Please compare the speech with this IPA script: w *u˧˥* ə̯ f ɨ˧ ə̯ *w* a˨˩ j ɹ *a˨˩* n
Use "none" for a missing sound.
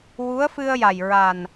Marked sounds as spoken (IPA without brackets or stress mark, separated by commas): u˧˥, j, a˨˩